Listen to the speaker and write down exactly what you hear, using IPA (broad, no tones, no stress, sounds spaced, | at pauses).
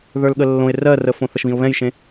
ð ə˞ l ɠ ə lː õ ɪ̯ r ɜ r ə f õ θ ə ʃ β ĩ ʊ̯ β ɛ̃ j ʃ ẽ